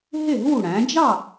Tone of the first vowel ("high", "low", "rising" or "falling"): falling